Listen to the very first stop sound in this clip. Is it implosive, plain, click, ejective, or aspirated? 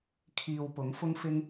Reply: aspirated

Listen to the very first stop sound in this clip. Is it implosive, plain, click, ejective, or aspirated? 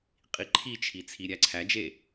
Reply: ejective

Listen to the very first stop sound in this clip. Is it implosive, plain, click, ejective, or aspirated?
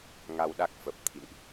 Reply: implosive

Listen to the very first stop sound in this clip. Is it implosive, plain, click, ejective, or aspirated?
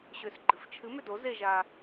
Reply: click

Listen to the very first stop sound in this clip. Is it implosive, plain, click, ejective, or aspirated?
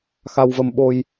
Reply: implosive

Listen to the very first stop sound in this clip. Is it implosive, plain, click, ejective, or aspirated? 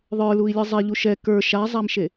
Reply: plain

